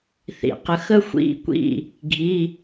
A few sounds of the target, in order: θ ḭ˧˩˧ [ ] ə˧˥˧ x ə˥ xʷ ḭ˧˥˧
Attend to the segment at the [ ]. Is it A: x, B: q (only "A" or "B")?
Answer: B